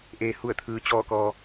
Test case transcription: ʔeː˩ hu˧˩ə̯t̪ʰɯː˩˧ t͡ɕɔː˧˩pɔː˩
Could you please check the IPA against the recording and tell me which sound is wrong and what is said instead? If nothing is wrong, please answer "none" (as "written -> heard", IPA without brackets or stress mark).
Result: p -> k